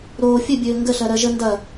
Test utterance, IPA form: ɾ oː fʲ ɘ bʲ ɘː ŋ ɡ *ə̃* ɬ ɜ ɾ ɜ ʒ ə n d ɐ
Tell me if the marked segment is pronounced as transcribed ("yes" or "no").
no